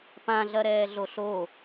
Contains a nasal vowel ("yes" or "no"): yes